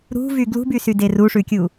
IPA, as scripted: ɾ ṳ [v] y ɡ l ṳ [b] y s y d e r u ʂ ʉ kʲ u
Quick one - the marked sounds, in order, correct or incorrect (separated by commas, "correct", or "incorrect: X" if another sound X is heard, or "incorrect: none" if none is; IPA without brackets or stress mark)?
correct, correct